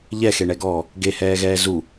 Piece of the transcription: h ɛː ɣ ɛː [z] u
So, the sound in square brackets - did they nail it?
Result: yes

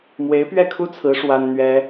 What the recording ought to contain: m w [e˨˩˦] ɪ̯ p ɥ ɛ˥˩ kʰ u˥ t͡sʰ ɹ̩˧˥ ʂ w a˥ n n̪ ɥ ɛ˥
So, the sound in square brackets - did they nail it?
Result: no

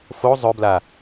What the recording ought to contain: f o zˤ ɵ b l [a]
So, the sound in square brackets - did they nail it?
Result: yes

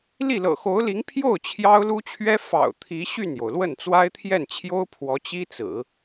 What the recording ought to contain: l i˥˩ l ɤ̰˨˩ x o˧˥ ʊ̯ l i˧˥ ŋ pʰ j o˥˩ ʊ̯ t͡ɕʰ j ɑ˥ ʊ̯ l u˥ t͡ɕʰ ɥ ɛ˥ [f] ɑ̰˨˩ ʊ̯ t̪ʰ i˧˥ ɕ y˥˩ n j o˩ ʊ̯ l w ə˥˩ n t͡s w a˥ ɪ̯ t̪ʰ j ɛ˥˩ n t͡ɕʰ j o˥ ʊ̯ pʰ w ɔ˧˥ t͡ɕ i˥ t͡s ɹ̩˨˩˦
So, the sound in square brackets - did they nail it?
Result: yes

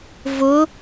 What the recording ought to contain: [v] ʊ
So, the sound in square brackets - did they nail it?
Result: yes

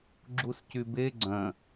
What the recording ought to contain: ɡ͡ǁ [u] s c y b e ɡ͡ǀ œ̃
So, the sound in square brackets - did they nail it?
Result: yes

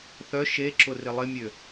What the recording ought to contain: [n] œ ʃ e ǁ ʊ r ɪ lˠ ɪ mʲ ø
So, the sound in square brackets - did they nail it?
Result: no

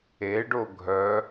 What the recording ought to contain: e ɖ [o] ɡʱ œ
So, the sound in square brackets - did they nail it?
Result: yes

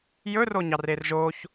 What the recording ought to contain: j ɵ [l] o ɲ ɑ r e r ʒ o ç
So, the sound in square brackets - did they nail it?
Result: no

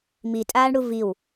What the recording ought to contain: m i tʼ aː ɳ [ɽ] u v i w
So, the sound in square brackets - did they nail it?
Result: yes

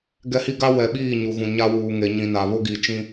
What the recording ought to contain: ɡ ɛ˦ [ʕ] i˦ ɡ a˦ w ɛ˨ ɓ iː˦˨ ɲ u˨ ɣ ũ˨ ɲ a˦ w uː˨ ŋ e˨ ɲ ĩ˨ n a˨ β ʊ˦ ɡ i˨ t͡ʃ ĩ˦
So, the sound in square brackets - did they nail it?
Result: no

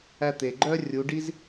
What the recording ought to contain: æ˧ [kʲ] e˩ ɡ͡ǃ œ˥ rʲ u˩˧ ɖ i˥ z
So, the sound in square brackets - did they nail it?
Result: no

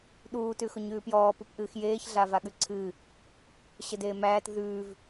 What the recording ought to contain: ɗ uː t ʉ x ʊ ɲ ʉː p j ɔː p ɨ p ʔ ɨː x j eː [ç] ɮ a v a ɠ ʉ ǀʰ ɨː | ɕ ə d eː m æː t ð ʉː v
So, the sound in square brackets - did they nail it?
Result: yes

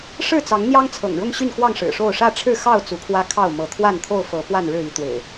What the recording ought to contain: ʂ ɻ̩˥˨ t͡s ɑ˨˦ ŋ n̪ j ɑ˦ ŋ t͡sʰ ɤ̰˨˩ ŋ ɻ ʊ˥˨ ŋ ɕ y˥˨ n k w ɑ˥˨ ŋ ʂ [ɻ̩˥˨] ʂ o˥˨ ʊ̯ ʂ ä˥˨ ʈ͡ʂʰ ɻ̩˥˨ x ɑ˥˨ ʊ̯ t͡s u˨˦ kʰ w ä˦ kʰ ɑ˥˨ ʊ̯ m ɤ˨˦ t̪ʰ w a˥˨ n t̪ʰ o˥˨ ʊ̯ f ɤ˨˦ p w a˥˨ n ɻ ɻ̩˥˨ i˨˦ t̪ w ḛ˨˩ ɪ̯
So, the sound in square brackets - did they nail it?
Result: no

